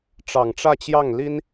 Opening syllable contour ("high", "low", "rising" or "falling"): low